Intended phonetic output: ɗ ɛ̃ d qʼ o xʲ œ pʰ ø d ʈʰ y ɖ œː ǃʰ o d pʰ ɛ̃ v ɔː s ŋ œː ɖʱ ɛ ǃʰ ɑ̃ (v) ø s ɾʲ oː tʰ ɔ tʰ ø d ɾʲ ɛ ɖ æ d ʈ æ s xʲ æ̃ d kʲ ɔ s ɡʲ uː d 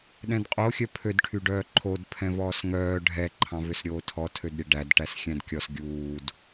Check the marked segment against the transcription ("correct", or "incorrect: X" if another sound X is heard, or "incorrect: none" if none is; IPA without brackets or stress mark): correct